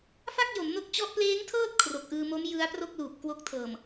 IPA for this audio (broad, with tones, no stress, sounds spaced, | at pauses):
f a˥˩ k̚ j o˩˦ m n o˦˥ k̚ t͡ɕ ɔ˦˥ ʔ p l eː˦˥ ŋ tʰ ɤː˥˩ t̚ kʰ r o˨˩ k̚ ʔ ɯː˧ m o˦˥ m j ɯ˦˥ a̯ p r o˥˩ k̚ l uː˨˩ p̚ k w o˦˥ k̚ tʰ ɤː˨˩ m